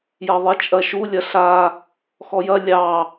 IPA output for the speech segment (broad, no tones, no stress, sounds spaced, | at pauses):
j ɐ ðˤ e t͡ʃʼ ɐ ʃ u lʲ ɐ ɬ a | x ɔ j ɐ lʲ ɑ